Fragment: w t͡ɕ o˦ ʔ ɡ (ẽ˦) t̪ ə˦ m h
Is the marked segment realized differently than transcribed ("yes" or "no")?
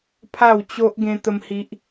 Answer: no